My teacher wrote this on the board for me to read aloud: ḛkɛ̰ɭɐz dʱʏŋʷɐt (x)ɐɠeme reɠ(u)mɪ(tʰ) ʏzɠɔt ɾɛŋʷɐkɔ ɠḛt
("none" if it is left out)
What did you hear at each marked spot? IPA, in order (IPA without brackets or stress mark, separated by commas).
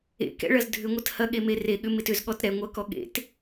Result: h, ʏ, t